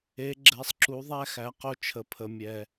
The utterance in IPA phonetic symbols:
e˨˦ɡ͡ǁɛ˨˦sˤǁu˨˦ðˤæ˦ xæ˨˦qo˦ t͡ʃʰə˨ pʰə˨mʲɛ˨

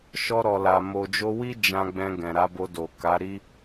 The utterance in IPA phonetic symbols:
ʃɔ˧ɾɔ˨la˨ mo˨d͡ʒo˧wi˦ d͡ʒã˧ɡ͡bɛ̃˧ ɡɛ̃˨ɾa˨˦bo˧do˨ ka˨˦ɾi˦

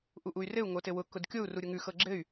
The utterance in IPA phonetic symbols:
ʔuʔuy̯rɘu̯ ŋotɘwʊ kʊdkʲou̯ ruɾʲʊŋʉ xɤɡ͡ǁɘy̯

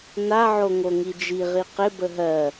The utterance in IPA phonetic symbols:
naʕo ŋoŋid͡ʒiʁi qɪ bəɦɜ

